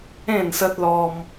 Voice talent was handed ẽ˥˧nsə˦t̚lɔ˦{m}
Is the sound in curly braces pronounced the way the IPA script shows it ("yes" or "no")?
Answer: yes